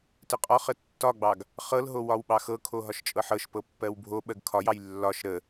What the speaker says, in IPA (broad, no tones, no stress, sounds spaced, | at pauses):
t ə qʼ ɒ χ ə tː ɒ ɡ͡b ɑ ɡ | χ ɤ l ɦ o w ɒ w ɓ ɑ x ɤ kʰ o ɦ ɒ ʃ t͡ʃʼ ɤ ħ ɤ ʃ p ɤ pː ɜ w bʱ o ɓ ɜ ɡ kʰ ɒ j ɑ j lː ɒ ʃ ɾ ə